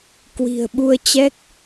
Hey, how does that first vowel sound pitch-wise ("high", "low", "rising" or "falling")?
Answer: low